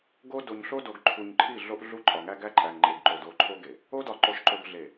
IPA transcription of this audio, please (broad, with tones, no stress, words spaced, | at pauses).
ɡo˦ do˨ɲɬo˦do˨ɡ ǃʰu˨ɲǃʰi˦˨ ɮo˦ʔɮu˦ ǃʼɒ˨ŋæ˦ɡæ˦ǃʼæ˨ŋ ŋ͡ǃe˨ɡǃo˨d o˦˨ǃʰo˦ɡe˨ | o˦dɒ˨ ǃo˨ʃǃo˨ɡɮe˨